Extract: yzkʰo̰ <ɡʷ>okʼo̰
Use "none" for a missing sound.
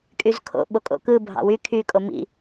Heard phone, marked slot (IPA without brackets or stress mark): ɓ